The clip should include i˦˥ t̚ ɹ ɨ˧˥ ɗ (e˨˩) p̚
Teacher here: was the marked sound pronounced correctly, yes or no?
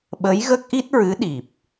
no